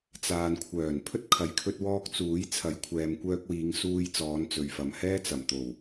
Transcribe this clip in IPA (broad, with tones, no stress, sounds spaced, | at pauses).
t͡s aː˨ n kʷʰ œː˨˩ n pʰ ɵ˥ t̚ kʰ ɐ˨ j kʰ ɵ˧ t̚ w ɔː˧ k̚ t͡s uː˨˥ j t͡sʰ ɐ˨˥ j kʷʰ ɛː˨ m kʷ œː˧ k̚ w iː˨˧ ŋ s uː˧ j t͡s ɔː˨˧ n t͡s ɵ˨ ɥ f ɐ˨ m h ɛː˥ t͡s ɐ˨˩ m t̪ o˨˩ w